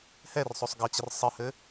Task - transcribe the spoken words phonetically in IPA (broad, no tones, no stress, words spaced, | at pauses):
hɛrsˤosˤ ɡʌt͡ɕər sˤɘhɘ